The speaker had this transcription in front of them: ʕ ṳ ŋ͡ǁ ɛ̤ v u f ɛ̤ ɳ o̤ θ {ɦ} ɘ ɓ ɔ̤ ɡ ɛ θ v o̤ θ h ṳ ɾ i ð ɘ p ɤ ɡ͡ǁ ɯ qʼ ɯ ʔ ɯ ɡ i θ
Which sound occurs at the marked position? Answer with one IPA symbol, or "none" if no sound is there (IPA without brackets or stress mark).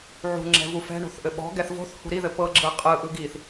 ʔ